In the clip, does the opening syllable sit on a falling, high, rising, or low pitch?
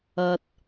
high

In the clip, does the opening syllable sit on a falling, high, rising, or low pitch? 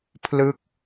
falling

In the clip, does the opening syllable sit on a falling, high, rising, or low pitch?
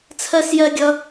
high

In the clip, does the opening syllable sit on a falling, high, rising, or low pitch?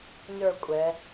falling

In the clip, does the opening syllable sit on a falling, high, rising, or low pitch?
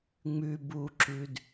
low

